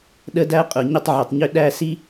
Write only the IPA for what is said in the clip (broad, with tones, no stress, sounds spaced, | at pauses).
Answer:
ɗ ə˦ d æ˦ qʼ ʊ˨ ɲ ə˦˨ tˤ ʕ ʏ˨ tˤ ɲ ʏ˦ ɗ æ˦˨ s i˦